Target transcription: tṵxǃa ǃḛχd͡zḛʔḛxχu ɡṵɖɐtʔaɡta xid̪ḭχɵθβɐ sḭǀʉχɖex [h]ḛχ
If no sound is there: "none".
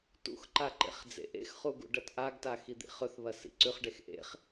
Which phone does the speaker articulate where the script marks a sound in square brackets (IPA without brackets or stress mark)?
ʔ